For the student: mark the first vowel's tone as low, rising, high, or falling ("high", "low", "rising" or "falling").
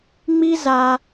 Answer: high